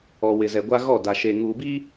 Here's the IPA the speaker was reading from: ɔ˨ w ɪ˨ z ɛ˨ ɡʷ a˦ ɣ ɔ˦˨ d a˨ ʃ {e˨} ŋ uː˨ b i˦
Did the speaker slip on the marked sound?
no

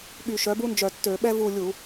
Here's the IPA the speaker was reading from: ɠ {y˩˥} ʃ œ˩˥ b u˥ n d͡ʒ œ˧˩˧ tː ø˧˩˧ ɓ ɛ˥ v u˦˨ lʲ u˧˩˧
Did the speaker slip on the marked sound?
yes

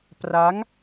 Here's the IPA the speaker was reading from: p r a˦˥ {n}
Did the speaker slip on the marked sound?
yes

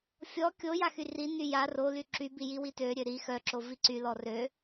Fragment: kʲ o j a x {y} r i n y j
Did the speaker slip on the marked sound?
no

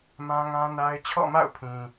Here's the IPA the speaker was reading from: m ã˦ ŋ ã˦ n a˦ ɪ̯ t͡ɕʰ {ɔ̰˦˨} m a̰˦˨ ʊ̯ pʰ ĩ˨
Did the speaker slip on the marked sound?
no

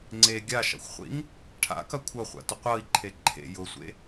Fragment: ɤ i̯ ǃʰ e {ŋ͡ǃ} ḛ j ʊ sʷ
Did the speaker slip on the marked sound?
yes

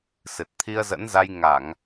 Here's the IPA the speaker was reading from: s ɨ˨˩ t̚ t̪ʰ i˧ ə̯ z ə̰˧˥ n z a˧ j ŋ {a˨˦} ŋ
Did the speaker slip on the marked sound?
yes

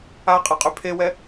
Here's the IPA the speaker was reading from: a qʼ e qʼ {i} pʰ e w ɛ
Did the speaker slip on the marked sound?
yes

